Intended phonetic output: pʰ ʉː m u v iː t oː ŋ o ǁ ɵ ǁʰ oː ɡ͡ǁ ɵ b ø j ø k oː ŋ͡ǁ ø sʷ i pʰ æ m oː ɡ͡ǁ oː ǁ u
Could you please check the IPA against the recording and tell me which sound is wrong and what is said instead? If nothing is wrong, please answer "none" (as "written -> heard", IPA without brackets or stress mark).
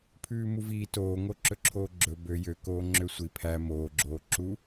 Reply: none